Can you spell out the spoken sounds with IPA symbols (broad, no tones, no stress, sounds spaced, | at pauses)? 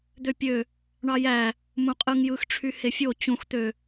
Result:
d̪ ø pʲ ø | ɳ ɑ j æ | m ũ qʼ ɯ ŋ j ɯ x ʈ͡ʂʰ y h e fʲ o t͡ɕ ũ x t̪ ø